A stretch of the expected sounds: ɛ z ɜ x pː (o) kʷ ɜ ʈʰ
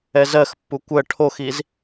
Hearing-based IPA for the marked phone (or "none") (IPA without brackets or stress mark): u